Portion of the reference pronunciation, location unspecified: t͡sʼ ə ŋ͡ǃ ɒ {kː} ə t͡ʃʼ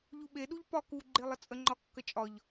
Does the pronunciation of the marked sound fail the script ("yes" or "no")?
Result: no